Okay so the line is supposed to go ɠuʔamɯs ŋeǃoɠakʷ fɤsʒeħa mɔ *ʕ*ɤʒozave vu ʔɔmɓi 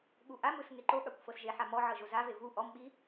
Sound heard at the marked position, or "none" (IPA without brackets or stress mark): ʕ